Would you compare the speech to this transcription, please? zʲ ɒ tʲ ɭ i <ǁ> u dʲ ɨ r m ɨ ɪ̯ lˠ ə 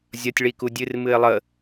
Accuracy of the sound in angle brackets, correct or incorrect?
incorrect